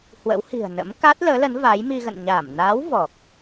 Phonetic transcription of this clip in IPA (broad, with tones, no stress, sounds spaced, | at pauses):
h w ə̰˧˥ w h i̤˨˩ ə̯ n ə̰˧˥ m k a˦˥ t̚ l əː˨˦ l ə˨˦ n v a˨˦ j m i˧ ɣ ə̰˧˨ n ɲ aː˧˩ m n aː˨˦ w v ɔ˨˩ k̚